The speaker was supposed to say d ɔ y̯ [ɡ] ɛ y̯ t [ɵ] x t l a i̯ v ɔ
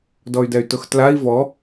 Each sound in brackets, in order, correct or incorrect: incorrect: d, incorrect: ʊ

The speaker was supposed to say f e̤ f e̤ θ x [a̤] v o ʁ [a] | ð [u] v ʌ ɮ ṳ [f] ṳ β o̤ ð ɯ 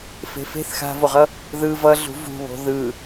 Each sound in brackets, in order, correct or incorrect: correct, incorrect: ʌ, incorrect: ɯ, incorrect: v

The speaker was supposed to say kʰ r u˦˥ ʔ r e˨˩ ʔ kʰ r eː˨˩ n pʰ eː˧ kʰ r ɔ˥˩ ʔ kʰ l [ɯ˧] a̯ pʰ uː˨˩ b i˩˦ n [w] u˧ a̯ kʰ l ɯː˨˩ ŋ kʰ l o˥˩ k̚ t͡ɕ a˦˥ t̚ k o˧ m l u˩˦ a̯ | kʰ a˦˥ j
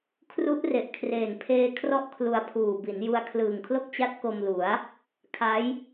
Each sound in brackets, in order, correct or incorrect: incorrect: u˧, incorrect: j

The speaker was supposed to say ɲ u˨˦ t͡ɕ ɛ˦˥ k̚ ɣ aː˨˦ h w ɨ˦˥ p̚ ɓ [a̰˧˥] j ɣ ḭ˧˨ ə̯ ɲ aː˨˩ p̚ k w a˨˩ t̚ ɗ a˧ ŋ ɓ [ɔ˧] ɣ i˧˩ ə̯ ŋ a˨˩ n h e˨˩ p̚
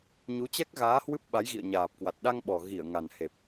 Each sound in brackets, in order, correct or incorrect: incorrect: a˨˦, incorrect: ɔ˨˩

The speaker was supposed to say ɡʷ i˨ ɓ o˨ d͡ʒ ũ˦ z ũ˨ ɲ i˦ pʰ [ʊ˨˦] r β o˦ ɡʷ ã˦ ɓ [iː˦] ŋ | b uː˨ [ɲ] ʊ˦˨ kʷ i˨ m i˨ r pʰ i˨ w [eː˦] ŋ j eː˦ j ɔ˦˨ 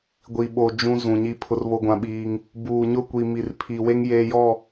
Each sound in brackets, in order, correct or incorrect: incorrect: ʊ˦, correct, correct, incorrect: e˦

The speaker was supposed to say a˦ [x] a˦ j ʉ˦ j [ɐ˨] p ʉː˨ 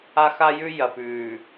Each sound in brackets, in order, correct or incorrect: correct, correct

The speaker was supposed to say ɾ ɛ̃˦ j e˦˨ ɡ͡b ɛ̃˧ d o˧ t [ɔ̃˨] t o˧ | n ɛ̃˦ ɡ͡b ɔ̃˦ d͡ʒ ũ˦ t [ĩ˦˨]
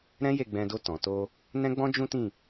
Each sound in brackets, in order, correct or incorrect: correct, correct

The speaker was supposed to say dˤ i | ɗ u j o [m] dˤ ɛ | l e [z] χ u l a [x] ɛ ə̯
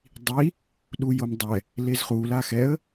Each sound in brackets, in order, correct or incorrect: correct, correct, correct

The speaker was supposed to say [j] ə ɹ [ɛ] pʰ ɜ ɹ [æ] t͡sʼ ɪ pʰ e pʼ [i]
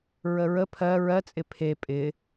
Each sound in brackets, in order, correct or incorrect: incorrect: ɹ, incorrect: ə, incorrect: ɜ, incorrect: ɪ

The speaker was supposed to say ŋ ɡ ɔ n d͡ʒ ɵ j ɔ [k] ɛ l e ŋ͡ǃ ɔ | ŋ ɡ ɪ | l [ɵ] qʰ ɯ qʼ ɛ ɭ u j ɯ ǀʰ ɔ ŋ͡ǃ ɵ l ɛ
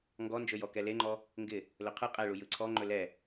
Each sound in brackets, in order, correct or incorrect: correct, correct

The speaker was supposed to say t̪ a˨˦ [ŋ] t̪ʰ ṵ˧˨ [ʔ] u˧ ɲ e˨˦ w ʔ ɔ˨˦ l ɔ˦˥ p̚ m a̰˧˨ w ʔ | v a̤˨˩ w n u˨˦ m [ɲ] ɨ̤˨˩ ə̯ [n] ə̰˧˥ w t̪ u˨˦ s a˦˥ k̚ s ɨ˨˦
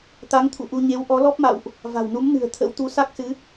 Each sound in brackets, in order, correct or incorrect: correct, correct, incorrect: n, incorrect: t̪ʰ

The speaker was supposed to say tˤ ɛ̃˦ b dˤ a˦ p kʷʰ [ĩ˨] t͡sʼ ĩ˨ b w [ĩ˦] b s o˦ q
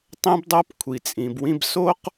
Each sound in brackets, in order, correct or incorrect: incorrect: i˨, correct

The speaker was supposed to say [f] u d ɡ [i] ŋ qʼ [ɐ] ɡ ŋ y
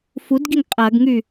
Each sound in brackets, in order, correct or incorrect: correct, correct, correct

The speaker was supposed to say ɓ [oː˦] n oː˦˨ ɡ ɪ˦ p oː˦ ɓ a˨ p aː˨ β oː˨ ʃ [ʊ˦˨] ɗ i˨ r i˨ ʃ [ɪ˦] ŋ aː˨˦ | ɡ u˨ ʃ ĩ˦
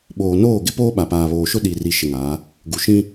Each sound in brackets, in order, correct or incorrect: incorrect: oː˨, incorrect: ʊ˦, incorrect: ɪ˨

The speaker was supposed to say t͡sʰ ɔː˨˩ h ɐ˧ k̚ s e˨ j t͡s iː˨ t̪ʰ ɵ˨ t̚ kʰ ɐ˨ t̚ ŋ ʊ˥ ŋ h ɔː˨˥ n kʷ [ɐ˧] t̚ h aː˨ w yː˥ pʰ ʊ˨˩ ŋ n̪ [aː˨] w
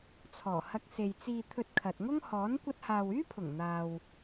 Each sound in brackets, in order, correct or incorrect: correct, correct

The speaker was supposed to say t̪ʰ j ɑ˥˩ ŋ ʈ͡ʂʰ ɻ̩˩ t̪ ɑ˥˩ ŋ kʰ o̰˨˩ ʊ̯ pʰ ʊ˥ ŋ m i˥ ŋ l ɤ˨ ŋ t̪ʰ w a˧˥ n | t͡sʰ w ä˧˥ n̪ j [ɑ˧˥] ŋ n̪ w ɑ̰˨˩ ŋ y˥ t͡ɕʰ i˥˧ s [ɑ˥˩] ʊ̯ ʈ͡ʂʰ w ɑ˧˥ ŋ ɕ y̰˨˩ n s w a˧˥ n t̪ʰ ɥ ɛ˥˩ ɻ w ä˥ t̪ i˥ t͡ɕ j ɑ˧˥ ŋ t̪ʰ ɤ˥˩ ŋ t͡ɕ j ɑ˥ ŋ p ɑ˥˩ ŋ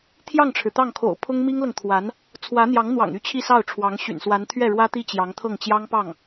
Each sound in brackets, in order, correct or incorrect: correct, correct

